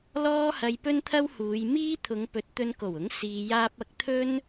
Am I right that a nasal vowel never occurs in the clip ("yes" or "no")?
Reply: yes